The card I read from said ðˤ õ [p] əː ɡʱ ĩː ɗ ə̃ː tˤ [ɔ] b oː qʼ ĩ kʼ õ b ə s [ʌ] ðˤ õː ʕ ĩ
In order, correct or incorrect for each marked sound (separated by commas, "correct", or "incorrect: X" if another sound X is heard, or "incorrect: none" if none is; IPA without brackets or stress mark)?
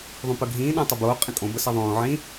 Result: correct, incorrect: ə, correct